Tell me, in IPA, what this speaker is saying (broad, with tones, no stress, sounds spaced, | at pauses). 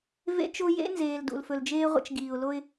v ḛ˦ t͡ʃ o˦ j ḛ˦ n z eː˨ l d ṵ˨ l f ɵ˨ l d͡ʒ eː˦ ʁʷ ə̰˦ t͡ʃ ɡ iː˨ ʊ̯ l o˦ ɪ̯